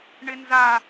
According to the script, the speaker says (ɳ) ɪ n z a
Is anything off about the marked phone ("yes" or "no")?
no